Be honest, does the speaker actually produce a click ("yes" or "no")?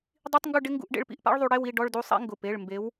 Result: no